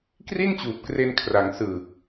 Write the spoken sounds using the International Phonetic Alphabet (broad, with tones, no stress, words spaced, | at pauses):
kri˥˩nt͡ɕuː˨˩p̚kre˧n kʰra˩˦ŋsɯː˨˩k̚